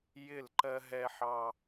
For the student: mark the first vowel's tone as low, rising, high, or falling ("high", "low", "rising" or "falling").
falling